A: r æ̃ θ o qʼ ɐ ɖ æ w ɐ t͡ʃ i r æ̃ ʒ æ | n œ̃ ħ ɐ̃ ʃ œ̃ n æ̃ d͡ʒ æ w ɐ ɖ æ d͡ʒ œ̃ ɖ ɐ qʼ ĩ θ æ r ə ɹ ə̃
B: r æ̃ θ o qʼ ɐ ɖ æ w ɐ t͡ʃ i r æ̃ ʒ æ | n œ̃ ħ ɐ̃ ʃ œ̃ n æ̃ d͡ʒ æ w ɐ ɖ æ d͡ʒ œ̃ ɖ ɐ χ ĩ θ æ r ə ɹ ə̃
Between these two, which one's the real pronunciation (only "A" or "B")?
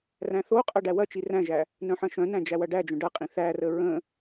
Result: A